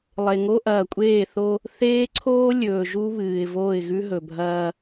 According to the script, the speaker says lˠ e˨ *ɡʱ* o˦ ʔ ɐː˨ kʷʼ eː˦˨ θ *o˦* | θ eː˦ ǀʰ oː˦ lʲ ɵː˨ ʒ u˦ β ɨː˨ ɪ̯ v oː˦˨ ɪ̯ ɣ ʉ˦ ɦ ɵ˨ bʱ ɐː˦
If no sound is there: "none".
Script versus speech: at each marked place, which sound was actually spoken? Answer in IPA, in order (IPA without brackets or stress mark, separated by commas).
ŋ, o˦